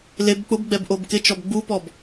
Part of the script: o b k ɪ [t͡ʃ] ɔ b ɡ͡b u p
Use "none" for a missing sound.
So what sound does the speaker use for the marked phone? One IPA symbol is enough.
t͡ʃ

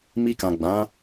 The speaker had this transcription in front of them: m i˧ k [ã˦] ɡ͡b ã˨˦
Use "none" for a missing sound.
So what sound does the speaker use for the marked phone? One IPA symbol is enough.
ã˨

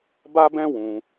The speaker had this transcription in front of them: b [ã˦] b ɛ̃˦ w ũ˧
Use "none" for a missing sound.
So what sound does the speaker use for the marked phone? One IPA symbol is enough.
a˦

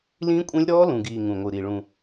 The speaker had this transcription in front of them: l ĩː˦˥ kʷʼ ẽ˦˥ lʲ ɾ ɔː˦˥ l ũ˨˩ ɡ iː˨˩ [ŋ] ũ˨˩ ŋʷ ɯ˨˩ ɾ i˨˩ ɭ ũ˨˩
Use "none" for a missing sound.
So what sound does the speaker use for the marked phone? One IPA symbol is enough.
ŋ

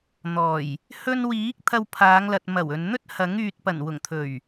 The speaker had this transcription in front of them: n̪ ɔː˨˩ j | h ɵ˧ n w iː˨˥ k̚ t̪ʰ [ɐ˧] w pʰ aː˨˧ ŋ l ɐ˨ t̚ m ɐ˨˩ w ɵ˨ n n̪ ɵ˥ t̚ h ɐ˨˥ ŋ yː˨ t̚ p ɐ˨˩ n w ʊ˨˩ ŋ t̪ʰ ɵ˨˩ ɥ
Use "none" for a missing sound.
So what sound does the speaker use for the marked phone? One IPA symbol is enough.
ɐ˧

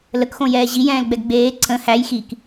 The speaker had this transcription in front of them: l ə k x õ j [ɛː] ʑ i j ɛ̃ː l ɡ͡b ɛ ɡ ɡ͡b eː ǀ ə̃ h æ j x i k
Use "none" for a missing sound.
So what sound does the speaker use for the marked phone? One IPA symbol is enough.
ɛː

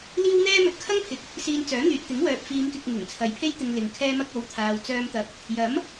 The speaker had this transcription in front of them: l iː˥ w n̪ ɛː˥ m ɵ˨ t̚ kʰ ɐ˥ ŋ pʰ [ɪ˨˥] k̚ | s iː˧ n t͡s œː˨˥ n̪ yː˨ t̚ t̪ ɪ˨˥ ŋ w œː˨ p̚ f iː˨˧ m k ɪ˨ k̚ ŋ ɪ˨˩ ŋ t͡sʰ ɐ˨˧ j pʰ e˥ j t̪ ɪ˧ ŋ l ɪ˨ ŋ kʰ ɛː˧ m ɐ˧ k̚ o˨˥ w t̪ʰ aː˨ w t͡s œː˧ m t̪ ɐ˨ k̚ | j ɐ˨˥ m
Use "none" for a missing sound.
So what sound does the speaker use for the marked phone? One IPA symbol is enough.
ɪ˨˥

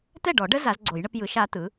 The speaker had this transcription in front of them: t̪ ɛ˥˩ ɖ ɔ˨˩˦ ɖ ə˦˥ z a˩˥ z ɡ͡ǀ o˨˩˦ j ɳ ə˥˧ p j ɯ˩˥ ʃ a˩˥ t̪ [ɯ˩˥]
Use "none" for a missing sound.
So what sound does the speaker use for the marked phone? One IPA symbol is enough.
ɯ˩˥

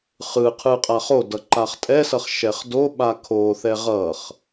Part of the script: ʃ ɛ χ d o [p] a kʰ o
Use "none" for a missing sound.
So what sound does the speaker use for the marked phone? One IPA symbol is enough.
ɓ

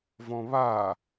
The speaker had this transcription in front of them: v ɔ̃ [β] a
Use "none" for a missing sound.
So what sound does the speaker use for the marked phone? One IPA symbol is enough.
β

